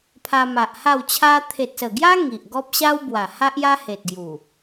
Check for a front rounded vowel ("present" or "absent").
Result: absent